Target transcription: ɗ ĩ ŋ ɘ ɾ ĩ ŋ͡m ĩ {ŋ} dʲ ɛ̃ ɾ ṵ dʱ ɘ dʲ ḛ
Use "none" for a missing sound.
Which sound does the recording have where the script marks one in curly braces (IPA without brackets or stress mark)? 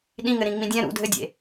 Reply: none